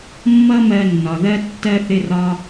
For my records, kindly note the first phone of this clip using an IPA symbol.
mː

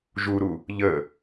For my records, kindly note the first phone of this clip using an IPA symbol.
ʒ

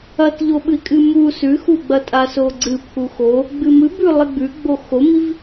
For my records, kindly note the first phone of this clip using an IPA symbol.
ɐ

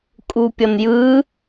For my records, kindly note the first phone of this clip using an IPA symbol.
kʼ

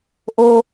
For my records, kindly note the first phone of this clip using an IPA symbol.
ʔ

